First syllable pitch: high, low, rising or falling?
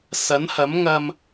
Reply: rising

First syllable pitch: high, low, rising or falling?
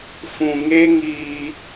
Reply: low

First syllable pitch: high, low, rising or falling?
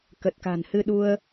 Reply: low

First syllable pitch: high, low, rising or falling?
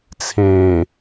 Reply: low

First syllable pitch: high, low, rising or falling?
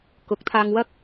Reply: rising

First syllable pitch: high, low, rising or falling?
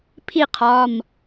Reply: falling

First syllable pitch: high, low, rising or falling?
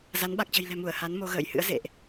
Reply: rising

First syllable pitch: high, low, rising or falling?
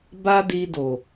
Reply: high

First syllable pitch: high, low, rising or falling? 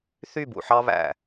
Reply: falling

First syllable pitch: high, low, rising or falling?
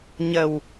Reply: low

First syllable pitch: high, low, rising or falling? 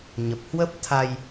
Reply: low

